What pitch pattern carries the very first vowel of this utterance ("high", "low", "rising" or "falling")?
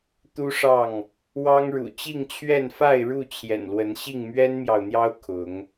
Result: high